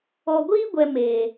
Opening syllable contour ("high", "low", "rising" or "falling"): low